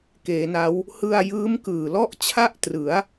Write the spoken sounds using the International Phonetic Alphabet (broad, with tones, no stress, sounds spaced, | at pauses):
k eː˩˦ n a˦˥ w | h ɯ˧ a̯ j ɯː˦˥ m k ɯː˨˩ l ɔ˥˩ ʔ t͡ɕʰ a˥˩ ʔ t r ɯ˩˦ a̯